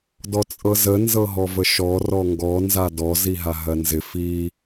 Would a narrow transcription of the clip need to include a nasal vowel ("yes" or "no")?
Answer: no